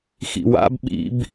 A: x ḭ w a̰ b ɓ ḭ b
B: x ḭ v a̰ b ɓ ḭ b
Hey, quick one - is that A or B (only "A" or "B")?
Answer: A